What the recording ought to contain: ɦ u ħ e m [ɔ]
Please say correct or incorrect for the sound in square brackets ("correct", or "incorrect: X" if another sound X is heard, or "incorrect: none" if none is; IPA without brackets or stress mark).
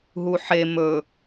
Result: incorrect: ɵ